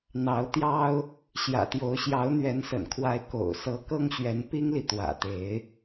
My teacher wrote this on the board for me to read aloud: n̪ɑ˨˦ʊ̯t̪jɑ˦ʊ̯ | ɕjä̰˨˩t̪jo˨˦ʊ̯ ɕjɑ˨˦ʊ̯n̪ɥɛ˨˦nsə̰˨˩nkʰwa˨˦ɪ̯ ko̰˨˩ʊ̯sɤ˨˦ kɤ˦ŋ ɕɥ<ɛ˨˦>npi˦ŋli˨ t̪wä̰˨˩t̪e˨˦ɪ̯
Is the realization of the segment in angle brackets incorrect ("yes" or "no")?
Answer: no